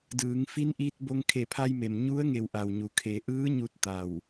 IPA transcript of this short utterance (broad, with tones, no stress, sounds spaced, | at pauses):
d ɯː˩˧ ŋ f i˧˥ n ʔ iː˧ t̚ b o˧ ŋ kʰ e˧˩ pʰ a˧ j m e˩ m ɲ u˧˥ ə̯ ŋ e˧˩ w ʔ a˩ w ɲ u˩˧ kʰ eː˩˧ ʔ ɯː˧˥ ɲ u˥˨ t̚ t̪ a˧˩ w